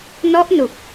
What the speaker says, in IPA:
n ɔ˦˥ ʔ n u˨˩ k̚

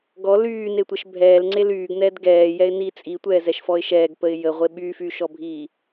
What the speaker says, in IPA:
ɡ ɔ l yː n e tʷ ɛ ʃ bʱ ɛː l ŋ͡ǀ e l yː ɡ n ɛː d ɡ ɛː j ɛ ɪ̯ n i t͡sʼ i tʷ ɛː z ɛ ʃ f ɔ ɪ̯ ʃ ɛː ɡ p ə ɪ̯ j ə ʁʷ e ɓ yː f yː ʃ ɔ bʱ iː

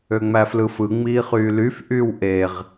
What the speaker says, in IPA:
ø ŋ͡m æ f l ɯ f ɯ ŋ͡m iː χ yː l y f ʔ yː w ʔ e ʁ

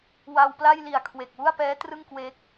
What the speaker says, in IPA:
w a˧ w p l a˥˩ j l i˨˩ a̯ kʰ w e˨˩ k̚ w u˥˩ a̯ p ɛː˦˥ t r ɯ˥˩ ŋ k w e˦˥ k̚

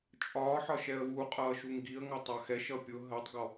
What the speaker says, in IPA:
t͡ʃʼ ɒː ħ ɒ ʃ ɛ ə̯ w u qʼ ʌː ʃ u ŋ ɡ i ə̯ ŋ ɒ tˤ ɑ x ɛ ʃ ʌ pʲ ʊ ɦ ɜ tˤ ɡ ɔ

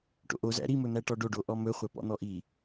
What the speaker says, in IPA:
ʈ o̰ ʔ o z æ̰ ɾ i m ɵ n̪ æ ʈ ɔ ɖ o ɖ o ʔ ɔ m ɵ χʷ æ p ɔ̰ n̪ ɔ ʔ i

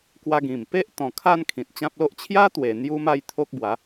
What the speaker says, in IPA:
k w a˧ ɡ ĩ˨˩ m p e˦ ʔ t̪ ɔ̃˨˩ kʰ a˥˧ n kʰ ĩ˨ t̚ t͡ɕ ã˦ p̚ l o˦ ʔ t͡ɕʰ j a˦ t̪ w e˨˩ n̪ j u˦ m a˥˧ j t̪ʰ o˦ k̚ b w a˨˦

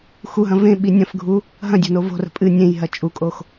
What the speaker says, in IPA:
x u ɦ ɐ̃ v ẽ ɓ i nʲ ɐ̃ f ɡʱ u | ɦ ɐ̃ dʲ o̤ n o v o̤ r ə̤ pʼ ɨ nʲ ẽ j ɦ ɐ t͡ʃʼ u kʼ o x

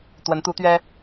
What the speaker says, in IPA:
t̪ w ə˧˥ n t̪ u˧˥ t̪ ɥ ɛ˥

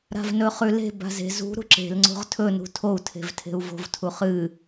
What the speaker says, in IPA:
ɾ a̤ v n ɵ χ ʉ l e̤ b a̤ z e̤ z ṳ ɾ ṳ ǁ e̤ l ŋ͡ǀ o̤ ʁ tʰ ɵ n ṳ tʰ o u̯ tʰ e̤ v tʰ e̤ u̯ v o̤ v tʰ u χ ɨ

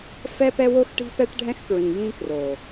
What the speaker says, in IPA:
f ɛ˦ p ɛ˦ w o˦ x ʈ i̤˦ p ɛ˦ ʈ ɖʱ ɛ̃˦ x k ɹ ĩ˨ j ĩ˦ k r o˨

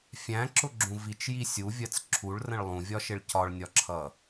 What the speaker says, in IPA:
fʲ æ̃ ǁ ʊ ɡ͡ǁ ũ v i t͡ʃ j i sʲ u vʲ ɜ t͡s ǁʰ u ɭ r ə̃ ɭ lˠ ũ vʲ ɒ ʃ ɪ ɭ c ɒ ɭ nʲ ɒ ǁʰ ʌ

